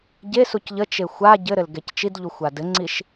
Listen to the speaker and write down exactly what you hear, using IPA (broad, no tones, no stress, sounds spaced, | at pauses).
ɟ e s u c ʎ ə t͡ʃ e xʷ a ɟ ɘ ɾ ɘ l ɡ ɛ c t͡ʃ i d ʎ u xʷ a d ɘ ŋ͡ǀ i ʃ